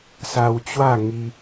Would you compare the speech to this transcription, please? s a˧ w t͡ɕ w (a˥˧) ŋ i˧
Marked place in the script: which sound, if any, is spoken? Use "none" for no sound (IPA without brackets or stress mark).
a˥˧